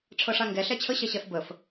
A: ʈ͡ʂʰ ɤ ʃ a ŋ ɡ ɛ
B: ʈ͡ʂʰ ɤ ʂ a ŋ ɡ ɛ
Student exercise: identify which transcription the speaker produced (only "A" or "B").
B